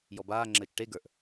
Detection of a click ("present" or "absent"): present